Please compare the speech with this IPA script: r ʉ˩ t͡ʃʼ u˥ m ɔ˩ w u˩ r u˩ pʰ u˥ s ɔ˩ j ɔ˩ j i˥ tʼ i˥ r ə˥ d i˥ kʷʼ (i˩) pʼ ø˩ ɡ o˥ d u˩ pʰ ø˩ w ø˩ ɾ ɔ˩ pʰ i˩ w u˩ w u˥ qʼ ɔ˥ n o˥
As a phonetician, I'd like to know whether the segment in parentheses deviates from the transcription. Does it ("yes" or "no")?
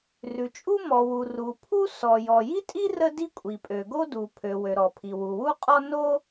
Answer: no